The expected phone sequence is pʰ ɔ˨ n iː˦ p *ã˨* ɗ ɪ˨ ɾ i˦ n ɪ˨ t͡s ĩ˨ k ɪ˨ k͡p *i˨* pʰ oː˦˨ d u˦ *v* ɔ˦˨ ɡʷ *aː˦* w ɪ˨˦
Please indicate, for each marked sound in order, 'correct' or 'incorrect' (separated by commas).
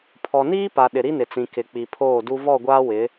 incorrect, correct, correct, correct